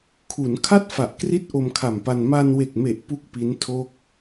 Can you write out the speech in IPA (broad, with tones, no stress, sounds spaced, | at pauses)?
kʰ u˩˦ n kʰ a˥˩ t̚ f a˨˩ ʔ k r i˦˥ t̚ ʔ o˧ m kʰ a˨˩ m p a˧ n m a˧ n w e˨˩ k̚ m e˨˩ ʔ p u˥˩ k̚ p i˦˥ n tʰ o˥˩ k̚